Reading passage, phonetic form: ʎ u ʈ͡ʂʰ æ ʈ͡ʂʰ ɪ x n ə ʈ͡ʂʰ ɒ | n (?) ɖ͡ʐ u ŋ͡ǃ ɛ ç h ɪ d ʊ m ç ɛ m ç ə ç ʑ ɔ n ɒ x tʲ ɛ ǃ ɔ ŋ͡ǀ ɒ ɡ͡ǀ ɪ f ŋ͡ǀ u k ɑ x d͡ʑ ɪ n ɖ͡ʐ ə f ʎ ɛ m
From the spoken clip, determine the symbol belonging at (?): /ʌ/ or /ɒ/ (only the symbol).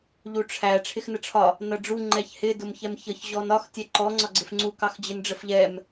ʌ